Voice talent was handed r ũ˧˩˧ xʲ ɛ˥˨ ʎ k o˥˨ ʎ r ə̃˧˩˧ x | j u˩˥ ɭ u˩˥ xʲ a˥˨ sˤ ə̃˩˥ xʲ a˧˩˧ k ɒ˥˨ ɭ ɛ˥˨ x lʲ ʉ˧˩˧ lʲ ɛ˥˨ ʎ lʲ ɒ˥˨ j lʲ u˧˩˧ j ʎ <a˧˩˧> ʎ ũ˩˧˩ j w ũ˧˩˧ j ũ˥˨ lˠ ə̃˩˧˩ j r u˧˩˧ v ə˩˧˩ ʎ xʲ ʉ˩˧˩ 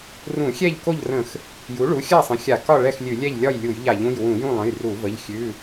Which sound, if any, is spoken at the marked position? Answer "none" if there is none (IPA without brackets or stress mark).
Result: a˧˩˧